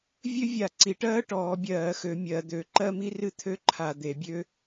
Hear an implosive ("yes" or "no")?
no